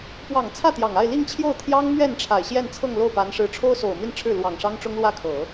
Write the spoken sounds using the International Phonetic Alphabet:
p w ɑ˨˩ ŋ t͡sʰ ä˥˩ t̪ j ɑ˨˩ ŋ a˥˧ ɪ̯ l i˥˧ ŋ t͡ɕʰ j o˥˩ ʊ̯ t̪ʰ j ɑ˥ ŋ m ɥ ɛ˥˩ n ʈ͡ʂʰ a˨˩ ɪ̯ ɕ j ɛ˥˧ n t͡sʰ ɤ˥˧ ŋ l o˥˩ ʊ̯ p a˧˥ n ʂ ɻ̩˧˥ ʈ͡ʂʰ o˥ ʊ̯ s o˨˩ ʊ̯ m i˥˧ n ʈ͡ʂʰ ɻ̩˥˩ l w ɑ˨˩ ŋ ʂ ɑ˥ ŋ ʈ͡ʂ ʊ˥ ŋ l w ä˥˩ kʰ ɤ˨˩˦

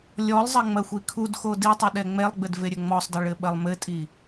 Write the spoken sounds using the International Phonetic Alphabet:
lʲ ɔ lˠ zˤ ɐ ŋ͡m ɐ xʷ i kʰ u d x o d i tˤ ɛ ɗ ɛ ŋ͡m ɛ lˠ ɡ͡b ɘ d v e ɾʲ ɘ ŋ͡m ɔ sˤ d ɐ ɭ ɘ ɓ ɐ lˠ m ɘ tʼ i

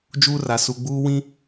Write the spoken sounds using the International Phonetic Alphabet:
d͡ʒ uː˦ r a˨ s u˨ ɡ͡b uː˦ w ĩ˦

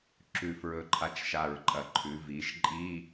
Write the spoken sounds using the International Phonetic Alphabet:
ǁ ʉ˨˩ f ɹ ɵ˨˩ ǃʰ a˨˥ t͡ʃ ʃ a˨˩ ɹ ǃʼ ɐ˨˩ ǃʰ ʉ˩˧ v i˩˧ ʃ ǃʼ i˧˥˧

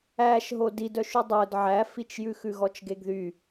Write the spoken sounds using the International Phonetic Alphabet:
æ ʃ ɦ o d i d œ ʃ y dˤ ɵ d ʕ æ f i t͡ʃ j ʉ x ʉ ɣ ɔ t͡ʃ ɡ e ɡ ð y

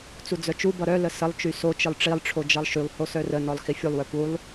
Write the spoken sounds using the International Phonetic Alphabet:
t͡s u d͡z œ t͡ʃ u b ʌ ɾ œ l ə s ə lˠ t͡ʃ y s o t͡ʃ ɨ lˠ ʈ͡ʂ i lˠ ʈ͡ʂʰ o d͡ʒ ʌ lˠ ʃ y lˠ h o s œ r ə n ɔ lˠ x i fʲ u lˠ w œ p u lˠ

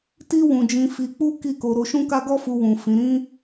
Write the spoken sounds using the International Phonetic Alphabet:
t i˦ w ũ˧ d͡ʒ ĩ˧ f i˧ k͡p u˦ k i˦˨ k o˧ ɾ o˧ ʃ ũ˦ k a˦ ɡ ɔ˦ f u˧ w ũ˨ f ĩ˨˦ ɾ ĩ˦

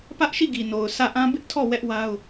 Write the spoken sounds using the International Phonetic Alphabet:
p ä˦ ʔ ʃ i˦˨ ɡ i˨ n o˨ ʊ̯ sʰ ä˦˨ ʔ ã˦ b ɪ˦ ʔ tʰ ɔ˦˨ w ɛ˦ ʔ w a˦ ʊ̯

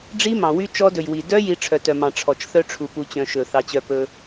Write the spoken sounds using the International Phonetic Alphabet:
ɖ͡ʐ i˦˥ m ɑ̃˨ w y˦˥ t͡ʃ ɔ˦˥ d ɵ˨ j w i˨ d œ˦˥ j i˦˥ ʈ͡ʂʰ œ˨ t œ˨ m ɑ̃˨ ʈ͡ʂʰ ɔ˨ t͡ʃ θ œ˦˥ ʈ͡ʂʰ u˨ p u˨ t͡ɕ œ̃˨ ʃ ɵ˨ θ ɑ˨ t͡ɕ œ˨ p ɵ˨

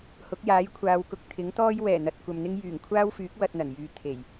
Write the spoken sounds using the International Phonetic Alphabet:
h ʊ˨˥ k̚ j aː˨˥ j kʷʰ aː˨˧ w k ʊ˨˥ k̚ t̪ʰ ɪ˨˥ ŋ t̪ ɔː˥ j w ɛː˨˩ n̪ ɐ˨ t̚ kʷ ɐ˨ m n̪ ɪ˥ ŋ j yː˨˩ ŋ kʷʰ aː˥ w f yː˨˥ k̚ w ɐ˧ t̚ n̪ ɐ˨˩ n j yː˨˧ t̪ʰ e˨˩ j

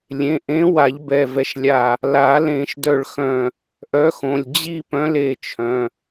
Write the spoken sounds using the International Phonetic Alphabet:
lʲ ẽ˩˧˩ ʔ ẽ˨˥ w a˨˩˦ ʎ b ɛ˩˧˩ v ɛ˧˩ ʃ lʲ a˧˩ | l a˨˩˦ l ẽ˨˩˦ ʃ d œ˧˩ ɭ x œ̃˧˩ | ʔ œ˨˥ x õ˩˧˩ lʲ d͡ʑ i˥˧ p œ̃˨˥ l e˧˩ t͡ʃʰ œ̃˩˧˩

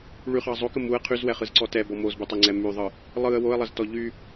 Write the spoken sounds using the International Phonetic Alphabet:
ɭ y χ ɑ zˤ o k ə m u ə̯ qʰ y z w ɛ χ ɯ z ǀ ɔ t ɛ b ɔ m o z b ɯ tˤ ə ŋ͡ǀ ɛ m y ðˤ ɯ | lˠ ɯ ə̯ w o ə̯ lˠ ə z t ɔ ʎ y

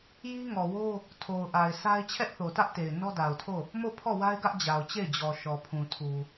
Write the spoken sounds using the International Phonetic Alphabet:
j i˦ ŋ ɔ˨ w o˦ | tʰ o˨ ʊ̯ ʔ a˨ ɪ̯ s a˦ ɪ̯ t͡ɕʰ ɛ˦ ʔ θ o˨ t ä˦ ʔ t e˨ ɪ̯ n ɔ˦ d a˨ ʊ̯ tʰ o˦˨ | m o˦˨ pʰ ɔ˦˨ w a˦ ɪ̯ ɡ ä˦ ʔ d͡ʑ a˨ ʊ̯ t͡ɕ e˦˨ ɪ̯ d͡ʑ ɔ˨ ʃ ɔ˨ pʰ ũ˨ tʰ u˨

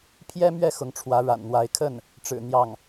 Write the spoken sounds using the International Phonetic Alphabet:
pʰ j ɛ˥ m ɥ ɛ˥˩ x ʊ˧˥ ŋ ʈ͡ʂʰ w ä˧˥ ɻ a̰˨˩ n n̪ w a˧˥ ɪ̯ kʰ ə˥˩ n | ʈ͡ʂ ɻ̩˨˩ n̪ j ɑ˥˩ ŋ

